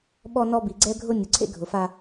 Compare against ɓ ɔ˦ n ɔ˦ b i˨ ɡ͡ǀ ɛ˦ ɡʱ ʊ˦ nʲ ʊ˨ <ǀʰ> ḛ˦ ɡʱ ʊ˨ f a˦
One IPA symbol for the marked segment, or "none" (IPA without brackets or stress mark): ǀʰ